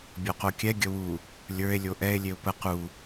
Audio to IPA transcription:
bʲ o q o kʲ ɛ ɡʲ ə w u | lʲ ə˞ e̯ lʲ o ʔ ɛ e̯ lʲ e o̯ p ə q u

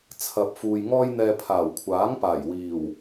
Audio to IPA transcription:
t͡sʰ ɐ˨ p̚ f uː˨ j ŋ ɔː˧ j n̪ ɛː˨ pʰ aː˨˩ w kʷʰ aː˨˥ ŋ p aː˨˩ j w iː˨˩ w

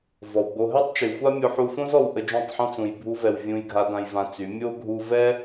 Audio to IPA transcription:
v ɔ˨ w ɡ͡b o˧ ɦ ɛ˦ tˤ t͡ʃ y˨ xʷ a˦ mʲ o˧ ħ u˧ f õ˦ z ɔ˧ w ʔ ə˧ d͡ʒ õ˦˨ tˤ ħ ɔ̃˦ t͡s ũ˨ j bʱ u˧ v ɛ˨ w vʲ ũ˧ j ɡʱ a˧ d ã˧ j v ã˧ t͡s y˨˦ mʲ o˦ ɡʱ u˧ v ɛ˦

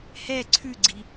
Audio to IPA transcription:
h ɛ ǀʰ ʉ ɡ͡ǀ i

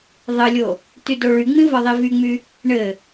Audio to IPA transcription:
ðˤ ɘ lʲ o | t y d o ɭ y ŋ͡m ĩ v ɒ ðˤ i v y ŋ͡m y | ɳ ɘ

